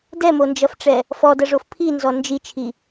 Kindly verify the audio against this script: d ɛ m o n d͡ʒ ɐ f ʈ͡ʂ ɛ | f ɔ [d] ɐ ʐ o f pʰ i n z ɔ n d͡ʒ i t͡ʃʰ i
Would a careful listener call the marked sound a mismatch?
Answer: no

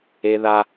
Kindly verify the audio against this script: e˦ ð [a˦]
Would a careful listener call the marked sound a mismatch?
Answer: no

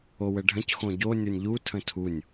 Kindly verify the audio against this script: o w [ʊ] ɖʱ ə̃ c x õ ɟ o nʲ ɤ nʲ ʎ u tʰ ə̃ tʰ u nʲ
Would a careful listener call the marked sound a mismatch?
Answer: yes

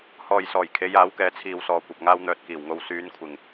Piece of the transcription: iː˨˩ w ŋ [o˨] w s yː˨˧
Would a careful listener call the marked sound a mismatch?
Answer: no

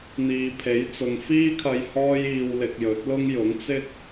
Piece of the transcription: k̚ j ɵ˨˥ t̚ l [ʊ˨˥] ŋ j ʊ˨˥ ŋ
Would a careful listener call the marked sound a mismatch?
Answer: yes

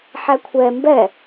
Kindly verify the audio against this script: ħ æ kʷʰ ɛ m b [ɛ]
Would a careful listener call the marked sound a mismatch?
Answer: no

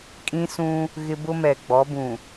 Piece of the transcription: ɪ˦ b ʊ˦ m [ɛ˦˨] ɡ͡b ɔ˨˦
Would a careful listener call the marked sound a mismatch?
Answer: yes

